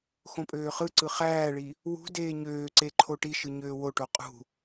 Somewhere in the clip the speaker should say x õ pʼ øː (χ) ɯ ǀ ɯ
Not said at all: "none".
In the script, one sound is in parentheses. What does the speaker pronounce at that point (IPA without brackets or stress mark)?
χ